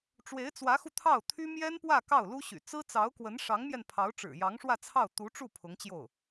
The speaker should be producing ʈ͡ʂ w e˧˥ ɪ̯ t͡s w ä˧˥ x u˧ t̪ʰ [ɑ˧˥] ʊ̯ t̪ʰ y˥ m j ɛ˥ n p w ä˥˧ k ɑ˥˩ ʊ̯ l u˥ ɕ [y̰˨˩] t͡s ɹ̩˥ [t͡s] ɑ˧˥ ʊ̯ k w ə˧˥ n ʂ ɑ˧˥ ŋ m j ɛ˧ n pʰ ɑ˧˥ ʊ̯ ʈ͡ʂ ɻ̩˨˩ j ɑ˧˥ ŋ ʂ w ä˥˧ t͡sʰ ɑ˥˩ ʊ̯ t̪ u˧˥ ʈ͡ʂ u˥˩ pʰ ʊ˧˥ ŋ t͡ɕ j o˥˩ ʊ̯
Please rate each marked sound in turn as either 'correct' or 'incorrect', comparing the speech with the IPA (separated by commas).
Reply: incorrect, correct, correct